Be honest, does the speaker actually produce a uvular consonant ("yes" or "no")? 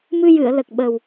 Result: no